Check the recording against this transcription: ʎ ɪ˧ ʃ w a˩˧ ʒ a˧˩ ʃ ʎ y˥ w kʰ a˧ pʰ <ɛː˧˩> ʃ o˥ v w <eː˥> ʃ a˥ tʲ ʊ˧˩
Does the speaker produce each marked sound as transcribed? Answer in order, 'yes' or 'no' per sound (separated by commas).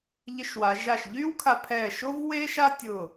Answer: yes, yes